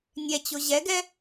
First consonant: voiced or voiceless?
voiced